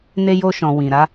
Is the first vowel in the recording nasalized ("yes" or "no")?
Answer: no